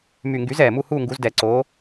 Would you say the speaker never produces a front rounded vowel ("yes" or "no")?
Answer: no